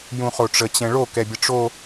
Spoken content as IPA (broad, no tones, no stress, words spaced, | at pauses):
jũχoʈ͡ʂə t͡ɕɛ̃ɭo kɛbʲəʈ͡ʂo